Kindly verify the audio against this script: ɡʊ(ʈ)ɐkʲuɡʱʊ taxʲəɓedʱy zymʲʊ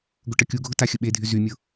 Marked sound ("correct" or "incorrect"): correct